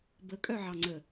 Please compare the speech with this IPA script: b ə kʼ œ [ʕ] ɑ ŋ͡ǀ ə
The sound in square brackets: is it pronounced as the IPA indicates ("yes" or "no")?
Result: yes